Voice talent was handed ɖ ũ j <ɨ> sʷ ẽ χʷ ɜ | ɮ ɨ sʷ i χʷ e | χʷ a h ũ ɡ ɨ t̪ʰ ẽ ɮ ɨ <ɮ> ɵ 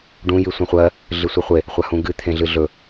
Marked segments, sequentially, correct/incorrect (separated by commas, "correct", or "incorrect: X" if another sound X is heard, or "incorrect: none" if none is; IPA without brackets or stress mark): correct, correct